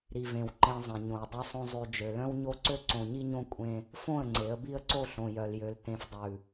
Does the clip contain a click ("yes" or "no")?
yes